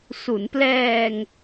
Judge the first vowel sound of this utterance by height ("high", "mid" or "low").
high